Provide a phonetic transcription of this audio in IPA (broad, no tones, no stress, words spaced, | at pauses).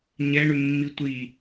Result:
ɲɛɳʉmːi tʷi